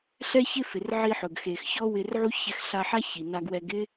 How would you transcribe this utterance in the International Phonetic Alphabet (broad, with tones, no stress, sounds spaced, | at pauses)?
ɬ ɛ˥ ç ɪ˥ f ɪ˩ r ʕ i˧ ħ ʊ˩ ɡ x e˩ x ç ɔ˥ w ɪ˧ r ʕ u˥ ç ɛ˧ x ɬ a˧ ħ a˥ ç i˩ n a˧ ɡ w ɛ˧ ɡ ɪ˥